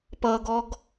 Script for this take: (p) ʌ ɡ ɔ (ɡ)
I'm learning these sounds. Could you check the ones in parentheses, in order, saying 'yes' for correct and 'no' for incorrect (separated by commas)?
yes, yes